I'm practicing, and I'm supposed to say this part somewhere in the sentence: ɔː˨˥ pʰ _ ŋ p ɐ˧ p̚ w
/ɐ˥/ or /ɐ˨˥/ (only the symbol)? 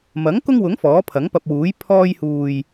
ɐ˨˥